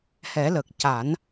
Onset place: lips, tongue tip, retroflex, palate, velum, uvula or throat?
throat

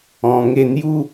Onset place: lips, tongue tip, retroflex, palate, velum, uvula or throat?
velum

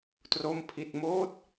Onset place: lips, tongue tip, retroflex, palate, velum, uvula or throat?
tongue tip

